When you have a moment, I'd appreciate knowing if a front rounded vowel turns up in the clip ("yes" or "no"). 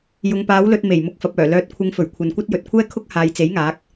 yes